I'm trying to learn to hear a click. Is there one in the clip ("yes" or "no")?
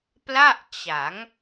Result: no